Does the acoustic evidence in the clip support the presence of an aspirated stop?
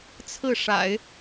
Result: yes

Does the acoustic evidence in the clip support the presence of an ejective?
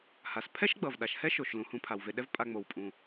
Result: yes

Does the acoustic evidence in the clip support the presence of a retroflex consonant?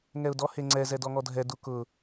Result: no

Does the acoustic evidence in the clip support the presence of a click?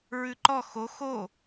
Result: yes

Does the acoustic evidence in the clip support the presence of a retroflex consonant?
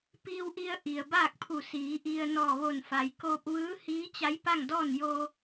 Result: no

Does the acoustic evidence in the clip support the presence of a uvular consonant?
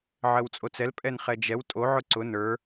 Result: yes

